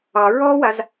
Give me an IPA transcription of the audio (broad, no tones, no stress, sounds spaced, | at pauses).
ɑ ɹ ɔ w a z